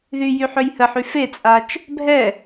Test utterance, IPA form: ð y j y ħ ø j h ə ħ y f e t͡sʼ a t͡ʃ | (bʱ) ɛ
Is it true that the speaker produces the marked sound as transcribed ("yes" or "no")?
yes